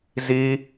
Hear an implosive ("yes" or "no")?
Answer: no